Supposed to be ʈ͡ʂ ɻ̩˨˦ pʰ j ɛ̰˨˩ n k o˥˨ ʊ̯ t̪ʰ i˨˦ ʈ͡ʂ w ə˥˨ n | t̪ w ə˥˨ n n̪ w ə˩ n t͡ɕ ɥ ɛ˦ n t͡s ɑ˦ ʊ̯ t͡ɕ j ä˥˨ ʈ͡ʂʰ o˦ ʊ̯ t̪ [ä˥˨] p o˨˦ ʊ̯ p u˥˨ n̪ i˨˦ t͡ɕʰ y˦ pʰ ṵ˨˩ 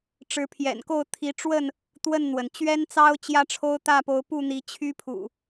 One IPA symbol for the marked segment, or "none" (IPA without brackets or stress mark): ä˥˨